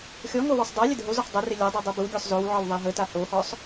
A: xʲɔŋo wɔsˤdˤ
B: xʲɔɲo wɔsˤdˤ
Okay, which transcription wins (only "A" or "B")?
A